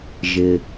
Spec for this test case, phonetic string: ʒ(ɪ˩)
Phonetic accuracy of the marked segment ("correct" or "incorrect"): correct